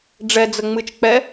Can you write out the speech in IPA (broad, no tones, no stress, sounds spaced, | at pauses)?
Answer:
ɖ͡ʐ ɛ d͡z ə ŋ͡m ɨ t͡ʃ k͡p ɛ